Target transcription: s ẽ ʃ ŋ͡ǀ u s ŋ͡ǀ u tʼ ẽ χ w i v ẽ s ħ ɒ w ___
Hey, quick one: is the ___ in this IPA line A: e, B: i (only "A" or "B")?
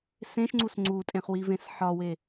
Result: A